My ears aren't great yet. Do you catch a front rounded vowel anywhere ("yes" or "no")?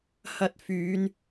yes